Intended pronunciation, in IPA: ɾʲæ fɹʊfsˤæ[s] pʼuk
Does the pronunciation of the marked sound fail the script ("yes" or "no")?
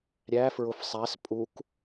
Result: no